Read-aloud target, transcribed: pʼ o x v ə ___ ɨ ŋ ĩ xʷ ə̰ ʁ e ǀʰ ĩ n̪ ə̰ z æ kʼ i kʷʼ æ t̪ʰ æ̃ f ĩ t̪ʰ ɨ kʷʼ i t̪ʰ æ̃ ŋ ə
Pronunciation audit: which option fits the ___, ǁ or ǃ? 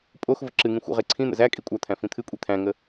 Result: ǁ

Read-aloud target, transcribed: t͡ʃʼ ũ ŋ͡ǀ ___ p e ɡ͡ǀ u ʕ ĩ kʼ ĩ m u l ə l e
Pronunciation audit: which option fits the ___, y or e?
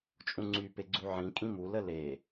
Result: y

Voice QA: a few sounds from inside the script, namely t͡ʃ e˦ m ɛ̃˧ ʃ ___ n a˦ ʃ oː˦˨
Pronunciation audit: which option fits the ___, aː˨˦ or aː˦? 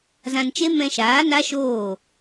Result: aː˨˦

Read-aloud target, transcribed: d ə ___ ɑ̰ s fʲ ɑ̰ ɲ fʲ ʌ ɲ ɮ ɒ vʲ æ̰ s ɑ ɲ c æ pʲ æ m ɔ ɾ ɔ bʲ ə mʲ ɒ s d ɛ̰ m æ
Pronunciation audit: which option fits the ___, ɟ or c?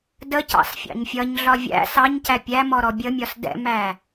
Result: c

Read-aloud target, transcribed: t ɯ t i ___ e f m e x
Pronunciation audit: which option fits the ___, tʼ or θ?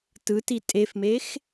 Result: tʼ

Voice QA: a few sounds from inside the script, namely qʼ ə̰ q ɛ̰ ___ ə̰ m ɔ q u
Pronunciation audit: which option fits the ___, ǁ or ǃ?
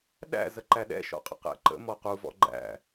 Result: ǃ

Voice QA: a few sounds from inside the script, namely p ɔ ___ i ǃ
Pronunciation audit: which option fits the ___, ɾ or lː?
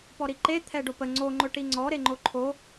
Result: ɾ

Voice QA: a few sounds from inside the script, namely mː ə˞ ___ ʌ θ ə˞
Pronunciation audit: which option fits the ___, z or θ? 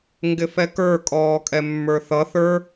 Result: θ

